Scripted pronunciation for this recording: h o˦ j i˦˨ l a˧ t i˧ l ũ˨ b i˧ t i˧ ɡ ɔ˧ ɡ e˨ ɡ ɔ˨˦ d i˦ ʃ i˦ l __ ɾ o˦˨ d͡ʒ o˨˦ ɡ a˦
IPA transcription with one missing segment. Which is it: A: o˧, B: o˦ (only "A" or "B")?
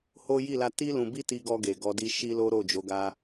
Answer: B